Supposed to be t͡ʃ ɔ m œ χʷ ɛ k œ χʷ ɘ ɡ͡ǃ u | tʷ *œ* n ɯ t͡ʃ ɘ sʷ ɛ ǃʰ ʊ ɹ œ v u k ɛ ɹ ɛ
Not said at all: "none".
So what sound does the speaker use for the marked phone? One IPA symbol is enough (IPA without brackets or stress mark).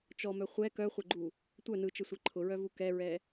œ